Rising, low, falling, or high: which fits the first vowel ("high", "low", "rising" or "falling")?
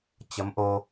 rising